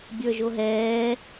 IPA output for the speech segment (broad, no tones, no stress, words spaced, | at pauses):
bʲə˞ʒoɦɛː